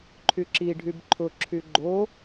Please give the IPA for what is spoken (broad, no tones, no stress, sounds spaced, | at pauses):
ǃʰ y ǁ i ɖʱ y b ǃʰ ʊ ǁʰ y ɡ͡ǃ o